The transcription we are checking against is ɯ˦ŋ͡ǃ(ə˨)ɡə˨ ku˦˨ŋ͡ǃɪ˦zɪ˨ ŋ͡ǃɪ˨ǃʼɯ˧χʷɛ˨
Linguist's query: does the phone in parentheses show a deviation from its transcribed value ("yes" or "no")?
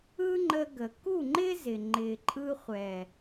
yes